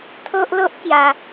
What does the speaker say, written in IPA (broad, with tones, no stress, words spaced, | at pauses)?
t̪ʰo˦ʔlo˦ʔkja˧